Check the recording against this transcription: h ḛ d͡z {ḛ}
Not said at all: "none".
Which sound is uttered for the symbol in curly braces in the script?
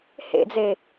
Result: e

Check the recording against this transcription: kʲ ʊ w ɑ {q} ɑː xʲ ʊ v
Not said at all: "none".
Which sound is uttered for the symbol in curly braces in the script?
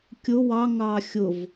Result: ŋ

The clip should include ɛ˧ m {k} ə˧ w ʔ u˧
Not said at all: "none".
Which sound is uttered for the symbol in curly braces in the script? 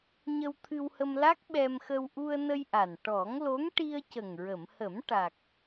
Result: x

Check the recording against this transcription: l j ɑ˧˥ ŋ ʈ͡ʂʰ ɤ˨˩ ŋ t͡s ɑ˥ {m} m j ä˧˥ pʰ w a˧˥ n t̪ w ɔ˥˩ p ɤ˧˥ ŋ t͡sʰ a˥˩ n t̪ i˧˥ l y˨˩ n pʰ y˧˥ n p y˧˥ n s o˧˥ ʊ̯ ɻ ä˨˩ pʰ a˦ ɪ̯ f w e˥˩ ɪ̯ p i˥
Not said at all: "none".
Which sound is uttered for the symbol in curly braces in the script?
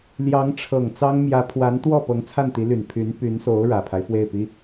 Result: ŋ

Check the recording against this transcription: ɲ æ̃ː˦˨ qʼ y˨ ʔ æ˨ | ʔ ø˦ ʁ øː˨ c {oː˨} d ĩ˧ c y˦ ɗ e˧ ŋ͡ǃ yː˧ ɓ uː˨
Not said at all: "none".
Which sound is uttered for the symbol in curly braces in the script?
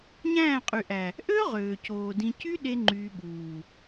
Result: oː˨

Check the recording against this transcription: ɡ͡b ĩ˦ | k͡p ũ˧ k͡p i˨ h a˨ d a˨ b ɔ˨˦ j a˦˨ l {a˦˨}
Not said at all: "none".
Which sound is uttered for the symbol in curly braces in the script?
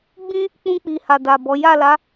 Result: a˨˦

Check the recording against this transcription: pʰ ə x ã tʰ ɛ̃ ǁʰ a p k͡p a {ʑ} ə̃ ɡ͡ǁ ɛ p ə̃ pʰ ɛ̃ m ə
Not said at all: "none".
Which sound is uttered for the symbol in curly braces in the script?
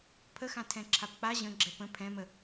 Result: ʑ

